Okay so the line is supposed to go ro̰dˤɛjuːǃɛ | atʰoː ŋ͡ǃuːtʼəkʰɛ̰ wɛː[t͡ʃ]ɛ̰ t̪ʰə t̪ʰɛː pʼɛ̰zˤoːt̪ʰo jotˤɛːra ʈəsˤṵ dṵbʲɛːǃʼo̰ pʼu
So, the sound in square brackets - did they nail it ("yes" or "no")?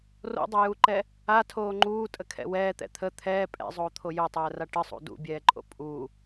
no